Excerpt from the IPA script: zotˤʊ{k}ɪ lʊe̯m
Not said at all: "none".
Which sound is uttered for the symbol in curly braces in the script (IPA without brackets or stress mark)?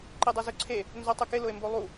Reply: k